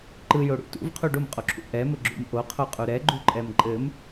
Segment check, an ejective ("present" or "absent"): present